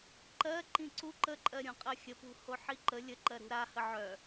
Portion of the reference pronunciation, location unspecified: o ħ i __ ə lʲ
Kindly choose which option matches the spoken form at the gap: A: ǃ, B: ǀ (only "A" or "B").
A